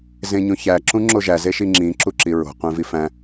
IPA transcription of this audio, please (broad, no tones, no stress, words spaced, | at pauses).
zẽɲõçæ ǁũŋ͡ǁoʒæ zeʃiŋ͡ǁĩ ǁuǁiɹo̤ qʷẽvifæ̃